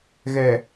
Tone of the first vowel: low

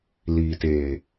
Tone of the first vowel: low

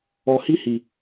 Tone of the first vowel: low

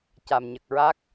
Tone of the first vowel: low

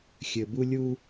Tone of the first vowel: low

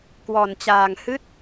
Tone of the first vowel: low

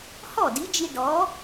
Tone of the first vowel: falling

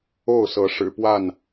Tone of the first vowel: falling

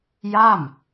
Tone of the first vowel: falling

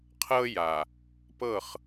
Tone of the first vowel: high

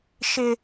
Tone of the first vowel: high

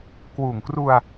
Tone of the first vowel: low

